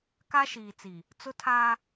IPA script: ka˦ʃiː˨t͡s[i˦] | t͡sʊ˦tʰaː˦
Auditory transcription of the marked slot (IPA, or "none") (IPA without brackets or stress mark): i˨